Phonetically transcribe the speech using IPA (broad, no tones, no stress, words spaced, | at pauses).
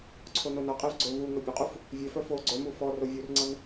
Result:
ǀʰononʌqʼiv ɡ͡ǀɵ vu ŋœbʲɵqʼuf | vʲœfœ fo ɡ͡ǀœmu fɔ rovʲurŋ͡ǀʌn